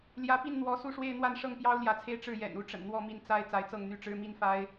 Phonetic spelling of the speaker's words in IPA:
l j ä˧˥ p i˥˩ n n̪ w ɔ˧˥ s u˥˧ ʂ w e˥˧ ɪ̯ n̪ w a˥˧ n ʂ ɤ˥˩ ŋ p j ɑ˥ ʊ̯ l j ä˧˥ t͡sʰ e˥˧ ɪ̯ ʈ͡ʂ ɻ̩˥˩ j ɛ̰˨˩ n u˧˥ ʈ͡ʂ ə̰˨˩ n n̪ w ɔ˥˧ m i˥˩ n t͡s a˥ ɪ̯ t͡s a˧˥ ɪ̯ t͡s ɤ˥˧ ŋ n̪ y˥˩ ʈ͡ʂ ɻ̩˥ m i˥ n f a˥ ɪ̯

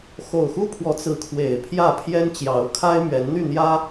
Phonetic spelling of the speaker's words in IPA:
x o˨˩ ʊ̯ x u˦ pʰ w ɔ˨˦ t͡s ɹ̩˨˦ kʰ w e˨˩ ɪ̯ pʰ j ä˥˨ pʰ j ɛ˦ n t͡ɕ j ɑ˨˦ ʊ̯ kʰ a˦ ɪ̯ m ɥ ɛ˨˦ n n̪ y˥˨ n̪ j ä˦

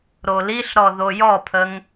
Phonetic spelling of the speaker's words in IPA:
ɾ o l i ɬ ɾ ɔ ð o j ɔ pʰ ə ŋ

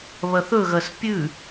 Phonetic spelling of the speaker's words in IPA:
β ɐ θ ɵ ɣ ɐ s pʲ ʉ

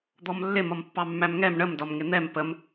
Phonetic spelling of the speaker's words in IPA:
d̪ ɔ m lː ɪ m ʌ m pː ɑ mː æ m ŋ ɛ m ɳ ə m d ɒ m ŋ ɪ n̪ ɛ m p ə m

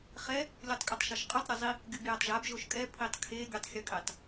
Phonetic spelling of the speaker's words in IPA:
χ ɛ | lʲ u tˤ kʼ ɯ tˤ ʃ ʌ ʃ qʼ u tˤ ɾʲ o zˤ i | ɡʲ u b j ɛ tˤ ʒ a b ʒ o ʃ kʼ ɛ pʰ i tˤ kʰ e ɡʲ u tˤ xʲ o kʼ e tˤ

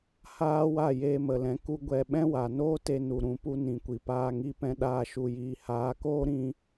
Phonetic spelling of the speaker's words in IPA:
h aː˦ w a˦˨ j eː˧ m ə˨ l ɛ̃˨˦ k u˦ ɡʷ ɛ˧ ɓ ɛ̃˦ w a˨ n oː˦ t e˧ n u˨ ɾ ũ˨ p u˧ n ĩ˨ kʷ i˨ p aː˧ ŋ i˧ p ɛ̃˧ ɗ aː˧ ʃ u˨ j iː˨ h aː˨˦ k oː˦ ɾ ĩ˧

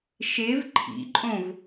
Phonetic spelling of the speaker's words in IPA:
ʃ e v ǃʰ ḭ ǃʼ õ v

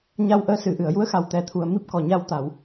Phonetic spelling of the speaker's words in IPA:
ɲ a˧ w ʔ əː˧ s ɨ˨˩˨ ʔ ɨ˨˩˨ ə̯ j u˧˥ ə̯ x a˨˩ w t̪ ɛ˨˩ t̪ʰ u˨˩ ə̯ m i˦˥ p̚ k ɔ˨˩ ɲ a˧ w t̪ a˨˩˨ w

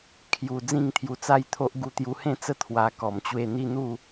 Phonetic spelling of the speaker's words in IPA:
kʰ j u˨˩ d͡z ĩ˥˧ ŋ t̪ʰ j u˧ t͡s a˦ j t̪ʰ o˦ ʔ ɡ u˧ t̪ j u˧ h ẽ˥˧ t͡s ə˥˧ t̪ʰ w a˧ k ɔ˨˩ m t͡ɕ w e˥˧ n̪ i˥˧ n̪ u˥˧

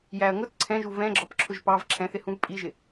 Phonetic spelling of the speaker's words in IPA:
j æ ɐ̯ ŋ ʊ t ǀʰ ɛ̃ ʒ u v ɛ̃ ɡ͡ǁ ɒ p ǁʰ ʊ ʒ p ɑ v ǁʰ ɛ̃ θ ɪ h ũ v pʼ i ʒ ɪ

